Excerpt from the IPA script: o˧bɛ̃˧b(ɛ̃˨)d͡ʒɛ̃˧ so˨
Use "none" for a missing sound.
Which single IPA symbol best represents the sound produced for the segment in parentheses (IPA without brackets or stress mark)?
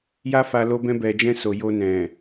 ɛ˨